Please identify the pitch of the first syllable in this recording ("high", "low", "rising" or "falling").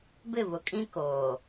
falling